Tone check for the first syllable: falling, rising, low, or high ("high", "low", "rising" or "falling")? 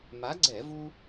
rising